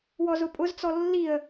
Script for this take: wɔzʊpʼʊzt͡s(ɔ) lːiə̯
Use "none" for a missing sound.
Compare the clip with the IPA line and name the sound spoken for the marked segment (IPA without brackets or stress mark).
ɔ